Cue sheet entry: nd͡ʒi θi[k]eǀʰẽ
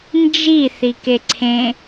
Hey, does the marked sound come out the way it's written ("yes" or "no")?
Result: yes